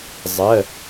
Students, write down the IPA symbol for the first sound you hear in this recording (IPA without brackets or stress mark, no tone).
zˤ